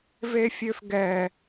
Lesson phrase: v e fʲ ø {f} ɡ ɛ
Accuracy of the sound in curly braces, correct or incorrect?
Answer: correct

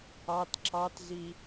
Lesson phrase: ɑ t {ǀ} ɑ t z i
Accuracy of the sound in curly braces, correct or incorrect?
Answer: incorrect: ǁ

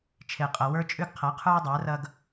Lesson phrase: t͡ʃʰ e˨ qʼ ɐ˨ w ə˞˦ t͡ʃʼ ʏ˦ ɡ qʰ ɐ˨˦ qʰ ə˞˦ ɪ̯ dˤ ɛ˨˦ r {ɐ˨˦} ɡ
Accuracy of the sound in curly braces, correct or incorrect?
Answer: incorrect: ɐ˦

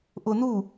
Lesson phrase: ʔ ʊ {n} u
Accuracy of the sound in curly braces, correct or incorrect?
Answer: correct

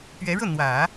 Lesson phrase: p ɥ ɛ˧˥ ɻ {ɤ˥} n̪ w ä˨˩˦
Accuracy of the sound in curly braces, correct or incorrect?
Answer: incorrect: ɤ˥˩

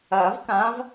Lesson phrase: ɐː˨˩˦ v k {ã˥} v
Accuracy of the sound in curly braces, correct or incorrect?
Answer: incorrect: ã˨˦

